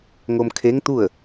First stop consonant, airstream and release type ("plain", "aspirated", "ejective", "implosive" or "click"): aspirated